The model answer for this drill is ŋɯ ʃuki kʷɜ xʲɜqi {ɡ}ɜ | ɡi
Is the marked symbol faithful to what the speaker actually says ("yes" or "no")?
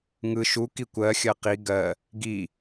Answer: yes